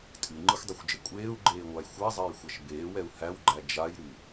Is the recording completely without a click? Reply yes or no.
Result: no